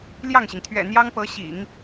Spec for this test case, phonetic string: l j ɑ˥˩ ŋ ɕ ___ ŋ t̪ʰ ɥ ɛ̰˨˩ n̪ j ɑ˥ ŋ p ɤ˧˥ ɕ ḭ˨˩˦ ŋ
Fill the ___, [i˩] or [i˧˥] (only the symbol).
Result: i˩